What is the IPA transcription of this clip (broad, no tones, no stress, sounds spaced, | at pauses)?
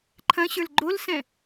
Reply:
ǃʰ ɐ̃ ɕ ə˞ l ɡ͡ǃ o l s ɛ̃